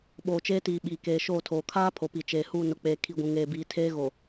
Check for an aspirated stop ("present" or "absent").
present